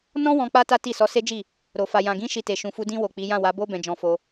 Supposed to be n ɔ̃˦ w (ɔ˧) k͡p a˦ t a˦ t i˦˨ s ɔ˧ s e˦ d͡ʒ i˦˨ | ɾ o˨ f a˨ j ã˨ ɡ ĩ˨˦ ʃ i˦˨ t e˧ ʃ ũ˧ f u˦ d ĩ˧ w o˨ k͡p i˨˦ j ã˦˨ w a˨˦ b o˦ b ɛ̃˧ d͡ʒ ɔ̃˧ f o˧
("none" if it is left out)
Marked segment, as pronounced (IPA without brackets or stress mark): ɔ̃˧